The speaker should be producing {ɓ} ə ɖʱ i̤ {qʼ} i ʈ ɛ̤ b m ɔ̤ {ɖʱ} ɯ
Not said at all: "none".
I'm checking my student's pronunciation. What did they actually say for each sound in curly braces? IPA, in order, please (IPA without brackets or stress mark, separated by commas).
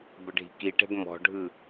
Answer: b, k, ɖʱ